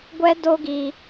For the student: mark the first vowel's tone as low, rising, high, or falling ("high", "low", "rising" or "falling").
high